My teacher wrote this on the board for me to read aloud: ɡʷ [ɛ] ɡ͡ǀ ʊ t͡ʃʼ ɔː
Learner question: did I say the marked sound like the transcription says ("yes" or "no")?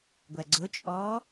yes